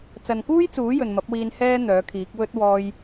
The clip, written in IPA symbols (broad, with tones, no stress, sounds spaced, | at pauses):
t͡s ɐ˨ n k uː˥ j t͡s uː˨˥ j ɵ˨ n m ɐ˨˥ p̚ w iː˧ n h ɛː˥ n̪ œː˨˥ kʰ iː˨˥ k̚ w ɵ˥ t̚ w ɔː˥ j